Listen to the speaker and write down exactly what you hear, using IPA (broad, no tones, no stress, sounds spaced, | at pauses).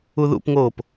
u ð ṵ p ŋ oː p